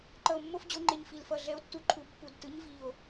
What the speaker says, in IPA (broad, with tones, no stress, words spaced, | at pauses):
ǃʌ˧˩o̯mːo˥˧fd͡ʑo˨˥ŋ͡ǃe˧˩ɲ fi˧˩lfʌ˧˩ ɮɛ˨˥o̯tːu˨˥ǃʰu˨˥ pːu˧˩dtɯ˨˥ɲ vi˧˩o̯